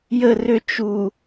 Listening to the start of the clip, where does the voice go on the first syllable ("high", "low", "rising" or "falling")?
falling